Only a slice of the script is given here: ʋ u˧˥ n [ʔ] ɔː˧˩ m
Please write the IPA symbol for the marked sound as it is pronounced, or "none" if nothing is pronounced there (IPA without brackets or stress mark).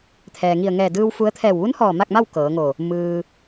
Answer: h